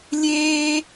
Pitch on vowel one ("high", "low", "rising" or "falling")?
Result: high